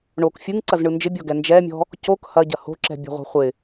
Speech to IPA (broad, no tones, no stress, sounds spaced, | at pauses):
ɳ o k fʲ ɯ ŋ ǀ ɐ z ɳ ɯ n d͡ʒ ɪ bʲ ɔ ɡ ɛ n d͡ʒ ɛ mʲ ɔ̤ | c o k h ɐ ɟ ɐ h o̤ ǁ ɛ̤ bʲ o̤ ʁʷ ɛ̤ χʷ ɪ